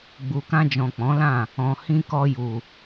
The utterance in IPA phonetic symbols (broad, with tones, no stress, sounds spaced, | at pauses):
ɡ͡b u˨ k ã˧ d͡ʒ ɔ̃˨ k͡p ɔ̃˨˦ l ã˦˨ | ɔ̃˨ h ĩ˧ k ɔ˧ j u˨